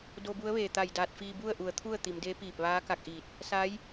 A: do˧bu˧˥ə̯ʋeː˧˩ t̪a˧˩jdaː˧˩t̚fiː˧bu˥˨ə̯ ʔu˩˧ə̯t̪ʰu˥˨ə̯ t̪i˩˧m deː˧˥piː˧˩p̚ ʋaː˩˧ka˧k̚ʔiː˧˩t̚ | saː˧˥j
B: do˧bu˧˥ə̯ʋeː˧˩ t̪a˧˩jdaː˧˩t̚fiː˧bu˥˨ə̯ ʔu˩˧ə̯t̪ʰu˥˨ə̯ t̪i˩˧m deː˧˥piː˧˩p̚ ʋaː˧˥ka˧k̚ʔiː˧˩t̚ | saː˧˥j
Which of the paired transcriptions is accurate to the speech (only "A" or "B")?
B